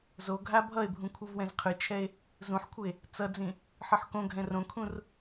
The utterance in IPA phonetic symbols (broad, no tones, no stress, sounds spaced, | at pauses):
z o ɡʱ a bʱ ʌ e̯ bʱ ũ kʷʰ ɯ v w ɛ̃ z qʰ ɯ t͡ʃʰ ɛ e̯ | z ũ ħ kʷʰ ɯ e̯ | t͡s ʌ d͡z ĩ | ħ ɯ ħ k õ ɡʱ ɛ̃ r õ kʰ ũ r